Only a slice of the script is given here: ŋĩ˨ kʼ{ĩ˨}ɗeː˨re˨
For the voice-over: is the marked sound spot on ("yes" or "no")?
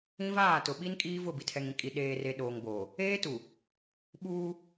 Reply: no